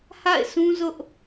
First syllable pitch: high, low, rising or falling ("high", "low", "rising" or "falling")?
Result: falling